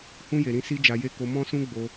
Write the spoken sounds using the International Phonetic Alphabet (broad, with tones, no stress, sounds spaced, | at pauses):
h ũ˧ j e˨ ɾ ĩ˧ s i˦ d͡ʒ a˧ j e˦ k o˧ m ɔ̃˦ s ũ˦ ɡ͡b o˧